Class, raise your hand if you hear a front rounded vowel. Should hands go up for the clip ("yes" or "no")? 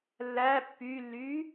yes